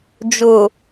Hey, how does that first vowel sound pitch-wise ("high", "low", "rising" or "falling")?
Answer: low